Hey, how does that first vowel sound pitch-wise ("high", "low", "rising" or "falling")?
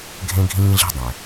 high